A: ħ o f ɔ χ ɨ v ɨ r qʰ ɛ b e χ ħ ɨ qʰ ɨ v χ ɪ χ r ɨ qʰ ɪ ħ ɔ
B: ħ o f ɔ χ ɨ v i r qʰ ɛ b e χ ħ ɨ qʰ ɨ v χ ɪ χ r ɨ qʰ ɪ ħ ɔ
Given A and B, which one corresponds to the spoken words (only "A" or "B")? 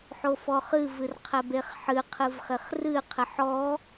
A